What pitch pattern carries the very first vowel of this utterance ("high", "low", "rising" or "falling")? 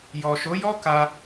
low